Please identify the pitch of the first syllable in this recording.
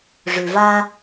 low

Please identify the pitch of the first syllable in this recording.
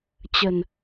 low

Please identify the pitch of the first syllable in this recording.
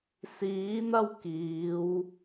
rising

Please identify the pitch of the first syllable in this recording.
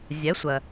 rising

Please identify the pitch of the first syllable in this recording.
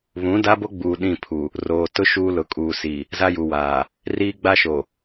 rising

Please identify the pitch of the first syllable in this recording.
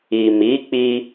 low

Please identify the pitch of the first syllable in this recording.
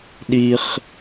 high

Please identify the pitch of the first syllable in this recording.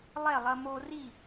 falling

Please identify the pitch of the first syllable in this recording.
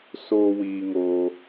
high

